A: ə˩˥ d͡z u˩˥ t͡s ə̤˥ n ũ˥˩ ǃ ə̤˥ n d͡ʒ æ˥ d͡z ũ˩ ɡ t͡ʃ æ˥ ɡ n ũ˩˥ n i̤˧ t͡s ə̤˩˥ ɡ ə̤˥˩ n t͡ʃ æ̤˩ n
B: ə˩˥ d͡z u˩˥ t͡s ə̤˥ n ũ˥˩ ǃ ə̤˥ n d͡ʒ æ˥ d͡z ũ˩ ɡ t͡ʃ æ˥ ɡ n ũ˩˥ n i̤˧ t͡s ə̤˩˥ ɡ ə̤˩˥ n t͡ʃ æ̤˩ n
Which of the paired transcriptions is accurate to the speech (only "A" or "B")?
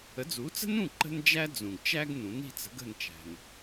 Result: A